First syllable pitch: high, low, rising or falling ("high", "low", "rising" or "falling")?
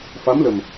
rising